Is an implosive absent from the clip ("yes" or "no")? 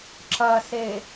yes